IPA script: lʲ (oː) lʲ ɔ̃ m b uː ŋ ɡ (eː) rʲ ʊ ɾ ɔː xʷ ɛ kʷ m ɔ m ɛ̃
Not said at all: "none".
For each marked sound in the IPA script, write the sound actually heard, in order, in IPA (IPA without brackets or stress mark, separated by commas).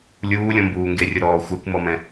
uː, e